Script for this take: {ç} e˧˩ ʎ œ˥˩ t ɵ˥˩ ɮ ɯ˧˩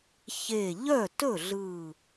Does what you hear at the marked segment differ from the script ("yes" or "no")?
no